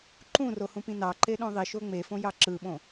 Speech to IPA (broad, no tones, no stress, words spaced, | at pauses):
ǃũro hũpĩnɑǃe ɗõðˤiʃo ŋ͡mefõ jɑǁɯɓõ